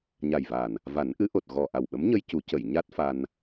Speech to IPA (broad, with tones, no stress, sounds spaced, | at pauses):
ɲ a˨˩ j v a˨˩ n | v a˨˩˦ n ʔ ɨ˧˥ ʔ o˨˩ t̚ ɣ ɔ˨˩ ʔ a˨˩ w ɓ ə˧˥ m ɲ ə˧ j c u˨˩˦ c ə˨˩˨ j ɲ a˦˥ t̚ f a˧ n